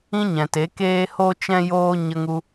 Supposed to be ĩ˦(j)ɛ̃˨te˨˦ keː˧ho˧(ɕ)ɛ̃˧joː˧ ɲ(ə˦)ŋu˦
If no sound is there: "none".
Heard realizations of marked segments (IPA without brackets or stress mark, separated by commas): ɲ, t͡ʃ, ə˦